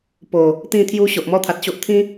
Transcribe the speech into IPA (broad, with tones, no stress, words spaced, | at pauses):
po˨˩ | t̪ĩ˥˧t̪ʰju˦ ɕo˨ʔmɔ˦t̪ʰa˨t̚ɕo˦ʔ t̪ʰĩ˦